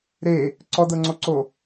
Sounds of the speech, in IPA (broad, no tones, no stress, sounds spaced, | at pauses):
ɾ e | ǀ ɔ d ɤ ŋ͡ǀ o ǀ o